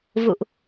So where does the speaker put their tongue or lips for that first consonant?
lips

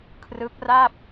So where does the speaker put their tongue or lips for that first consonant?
velum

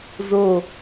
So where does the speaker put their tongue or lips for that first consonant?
tongue tip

